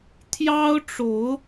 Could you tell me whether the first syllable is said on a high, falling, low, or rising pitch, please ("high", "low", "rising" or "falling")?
high